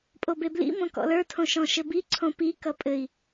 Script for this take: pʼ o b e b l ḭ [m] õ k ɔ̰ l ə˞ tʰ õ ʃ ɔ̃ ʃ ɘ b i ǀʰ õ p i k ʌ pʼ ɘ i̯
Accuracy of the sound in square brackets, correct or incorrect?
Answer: correct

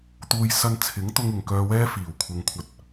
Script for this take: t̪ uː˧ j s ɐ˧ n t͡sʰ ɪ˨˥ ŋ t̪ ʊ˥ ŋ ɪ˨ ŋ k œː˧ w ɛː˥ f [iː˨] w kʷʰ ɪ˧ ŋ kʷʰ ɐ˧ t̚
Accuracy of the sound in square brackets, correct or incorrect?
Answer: incorrect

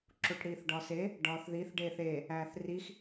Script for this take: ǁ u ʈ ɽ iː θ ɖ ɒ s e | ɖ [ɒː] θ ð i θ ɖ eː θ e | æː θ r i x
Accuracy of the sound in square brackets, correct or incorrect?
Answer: correct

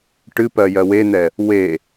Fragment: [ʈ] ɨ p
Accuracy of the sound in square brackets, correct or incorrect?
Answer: correct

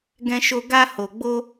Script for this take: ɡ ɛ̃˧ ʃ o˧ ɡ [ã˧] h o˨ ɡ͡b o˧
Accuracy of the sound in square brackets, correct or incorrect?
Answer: incorrect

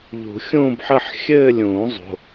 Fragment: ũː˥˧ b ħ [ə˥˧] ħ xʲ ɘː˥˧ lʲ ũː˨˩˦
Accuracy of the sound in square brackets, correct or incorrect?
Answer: correct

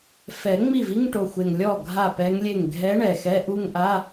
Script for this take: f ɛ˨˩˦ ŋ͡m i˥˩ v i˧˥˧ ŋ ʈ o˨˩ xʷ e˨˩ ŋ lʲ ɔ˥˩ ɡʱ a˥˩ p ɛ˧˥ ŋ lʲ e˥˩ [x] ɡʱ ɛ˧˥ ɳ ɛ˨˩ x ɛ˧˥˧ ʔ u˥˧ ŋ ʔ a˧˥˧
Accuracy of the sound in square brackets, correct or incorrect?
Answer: incorrect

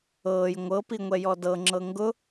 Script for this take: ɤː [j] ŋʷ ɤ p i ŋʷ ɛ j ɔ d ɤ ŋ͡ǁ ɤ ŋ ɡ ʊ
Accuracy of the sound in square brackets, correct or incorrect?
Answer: correct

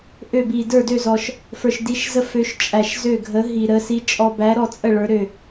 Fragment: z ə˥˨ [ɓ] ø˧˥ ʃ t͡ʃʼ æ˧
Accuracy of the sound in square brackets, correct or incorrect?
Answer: incorrect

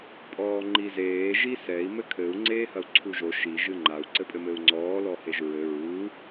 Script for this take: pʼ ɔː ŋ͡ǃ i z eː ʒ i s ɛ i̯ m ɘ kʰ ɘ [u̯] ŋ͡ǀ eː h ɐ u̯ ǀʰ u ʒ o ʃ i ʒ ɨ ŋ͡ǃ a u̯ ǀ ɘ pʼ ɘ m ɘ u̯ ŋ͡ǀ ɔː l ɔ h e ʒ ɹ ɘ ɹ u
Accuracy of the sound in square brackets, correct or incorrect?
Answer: correct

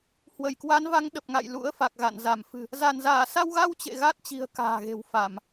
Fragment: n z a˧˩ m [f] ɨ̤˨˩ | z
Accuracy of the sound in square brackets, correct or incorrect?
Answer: correct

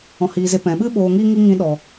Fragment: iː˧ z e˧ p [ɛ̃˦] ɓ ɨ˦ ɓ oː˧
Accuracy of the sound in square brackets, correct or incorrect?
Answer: incorrect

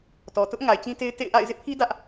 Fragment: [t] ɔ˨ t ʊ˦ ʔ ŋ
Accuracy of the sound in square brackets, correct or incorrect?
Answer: correct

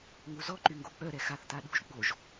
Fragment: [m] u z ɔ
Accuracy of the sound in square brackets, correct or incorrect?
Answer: incorrect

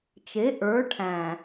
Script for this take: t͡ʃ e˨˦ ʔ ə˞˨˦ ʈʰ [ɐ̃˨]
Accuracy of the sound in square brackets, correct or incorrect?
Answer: incorrect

